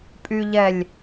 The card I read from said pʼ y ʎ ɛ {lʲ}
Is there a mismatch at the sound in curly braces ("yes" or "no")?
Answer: no